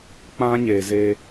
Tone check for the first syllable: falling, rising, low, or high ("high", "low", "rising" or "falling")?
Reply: high